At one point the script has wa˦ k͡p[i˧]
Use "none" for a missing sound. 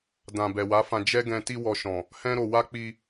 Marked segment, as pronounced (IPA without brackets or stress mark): i˧